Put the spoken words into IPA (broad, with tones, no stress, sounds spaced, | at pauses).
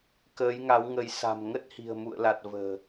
k əː˨˦ j ŋ a˨˦ w ŋ ə˨˦ j s a̤˨˩ m ŋ ə˦˥ t̚ h i̤˨˩ ə̯ m ṵ˧˨ ə̯ l a˨˩ t̚ v ə̤ː˨˩